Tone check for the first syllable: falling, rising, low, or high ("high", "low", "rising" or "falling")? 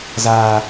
high